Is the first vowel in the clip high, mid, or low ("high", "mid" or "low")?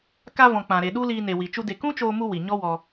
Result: low